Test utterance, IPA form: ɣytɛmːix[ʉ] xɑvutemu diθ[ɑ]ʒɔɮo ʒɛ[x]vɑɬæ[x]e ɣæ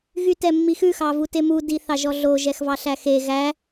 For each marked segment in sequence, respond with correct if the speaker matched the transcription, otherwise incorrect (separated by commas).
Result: correct, correct, correct, correct